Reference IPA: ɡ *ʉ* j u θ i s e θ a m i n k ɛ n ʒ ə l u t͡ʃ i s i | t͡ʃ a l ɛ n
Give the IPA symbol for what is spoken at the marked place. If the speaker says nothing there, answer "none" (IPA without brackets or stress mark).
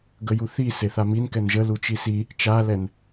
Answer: ə